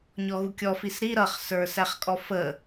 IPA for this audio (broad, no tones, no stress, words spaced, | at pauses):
ɲɔɣukʲɔ fisɾi ɾʌχ sə˞sæχkʼɔfə